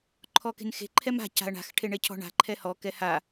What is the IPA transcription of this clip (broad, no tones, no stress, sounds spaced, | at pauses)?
ǃʰ ɔ k e̤ n x e̤ ǃʰ ɛ m a̤ c a̤ ɐ̯ ɳ a̤ x ʈʰ e ɳ e cʰ ɔ̤ ɳ a̤ ǃʰ ɛ h ɔ k ɛ h a